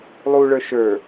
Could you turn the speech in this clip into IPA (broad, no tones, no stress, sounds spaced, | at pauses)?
lˠ u ɭ ə˞ ʃ ə˞